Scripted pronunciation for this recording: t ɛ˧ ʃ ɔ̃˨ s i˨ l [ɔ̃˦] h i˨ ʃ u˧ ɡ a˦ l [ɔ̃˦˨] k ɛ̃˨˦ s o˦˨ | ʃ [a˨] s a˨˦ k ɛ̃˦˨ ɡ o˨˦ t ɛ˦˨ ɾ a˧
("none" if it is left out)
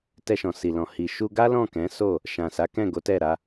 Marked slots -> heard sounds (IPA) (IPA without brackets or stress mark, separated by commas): ɔ̃˨, ɔ̃˦˨, ã˨